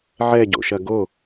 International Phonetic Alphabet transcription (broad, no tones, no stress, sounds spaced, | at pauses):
ʕ ɛ ɟ o̰ ʃ ɐ ɡ o